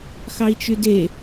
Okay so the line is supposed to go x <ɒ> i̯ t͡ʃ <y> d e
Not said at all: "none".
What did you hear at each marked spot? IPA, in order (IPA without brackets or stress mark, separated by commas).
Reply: ɑ, y